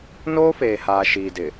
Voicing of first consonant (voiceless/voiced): voiced